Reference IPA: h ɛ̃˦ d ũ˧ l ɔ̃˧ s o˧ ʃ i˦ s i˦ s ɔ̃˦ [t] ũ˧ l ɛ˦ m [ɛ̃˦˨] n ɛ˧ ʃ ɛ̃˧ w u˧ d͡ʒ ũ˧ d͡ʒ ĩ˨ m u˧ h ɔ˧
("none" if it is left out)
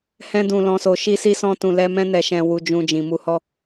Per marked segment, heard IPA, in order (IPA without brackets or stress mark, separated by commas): t, ɛ̃˦